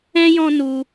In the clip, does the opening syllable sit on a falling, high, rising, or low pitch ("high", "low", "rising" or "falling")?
high